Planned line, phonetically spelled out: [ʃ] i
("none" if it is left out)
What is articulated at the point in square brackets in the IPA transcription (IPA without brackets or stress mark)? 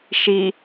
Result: ʃ